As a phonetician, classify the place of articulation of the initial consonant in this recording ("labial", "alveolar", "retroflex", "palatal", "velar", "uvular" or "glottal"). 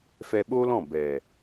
labial